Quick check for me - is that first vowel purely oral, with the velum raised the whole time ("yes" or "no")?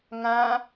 no